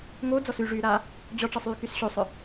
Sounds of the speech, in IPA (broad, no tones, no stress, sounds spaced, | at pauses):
ŋ o d͡z ɔ s y ʐ yː ɾ aː | d͡ʑ ɔ ʈ͡ʂ ɐ sˤ yː k y s ɕ o sˤ œ